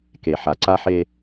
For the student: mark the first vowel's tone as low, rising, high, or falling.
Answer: low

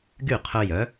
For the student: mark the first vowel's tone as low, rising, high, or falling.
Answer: falling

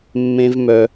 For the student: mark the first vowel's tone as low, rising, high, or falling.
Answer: high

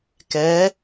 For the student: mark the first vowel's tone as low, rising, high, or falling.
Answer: rising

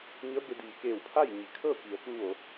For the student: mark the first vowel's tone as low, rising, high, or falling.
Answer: rising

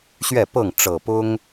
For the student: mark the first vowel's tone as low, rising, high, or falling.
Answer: falling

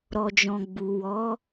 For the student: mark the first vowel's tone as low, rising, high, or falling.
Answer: low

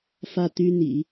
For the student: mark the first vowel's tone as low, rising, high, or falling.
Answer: falling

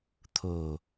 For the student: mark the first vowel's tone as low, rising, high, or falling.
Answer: low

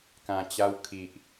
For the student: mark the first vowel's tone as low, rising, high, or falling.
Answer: low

